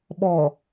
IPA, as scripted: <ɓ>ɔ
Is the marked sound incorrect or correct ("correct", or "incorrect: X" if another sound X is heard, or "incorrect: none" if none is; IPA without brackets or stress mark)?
correct